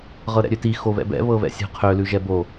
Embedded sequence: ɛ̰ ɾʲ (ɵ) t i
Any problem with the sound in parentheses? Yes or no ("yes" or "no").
yes